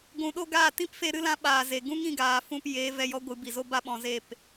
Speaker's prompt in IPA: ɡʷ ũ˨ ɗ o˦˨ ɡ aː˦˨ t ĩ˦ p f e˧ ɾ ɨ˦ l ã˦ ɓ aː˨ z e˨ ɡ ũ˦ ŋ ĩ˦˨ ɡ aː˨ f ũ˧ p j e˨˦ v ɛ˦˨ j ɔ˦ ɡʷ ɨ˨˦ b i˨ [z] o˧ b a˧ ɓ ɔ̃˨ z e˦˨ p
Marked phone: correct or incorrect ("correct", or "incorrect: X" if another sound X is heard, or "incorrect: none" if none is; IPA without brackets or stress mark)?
correct